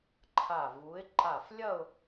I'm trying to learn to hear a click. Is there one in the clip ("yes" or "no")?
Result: yes